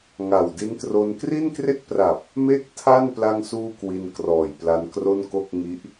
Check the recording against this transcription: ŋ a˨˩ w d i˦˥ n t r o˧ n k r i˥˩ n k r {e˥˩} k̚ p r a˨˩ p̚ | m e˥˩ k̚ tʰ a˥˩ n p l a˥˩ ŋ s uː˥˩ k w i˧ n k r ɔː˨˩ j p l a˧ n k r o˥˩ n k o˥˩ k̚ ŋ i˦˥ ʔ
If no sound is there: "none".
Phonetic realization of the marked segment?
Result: e˥˩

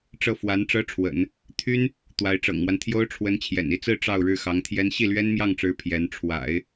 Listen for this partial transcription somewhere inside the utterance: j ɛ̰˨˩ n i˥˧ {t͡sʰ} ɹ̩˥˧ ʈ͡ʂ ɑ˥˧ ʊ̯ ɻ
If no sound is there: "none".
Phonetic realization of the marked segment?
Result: t͡s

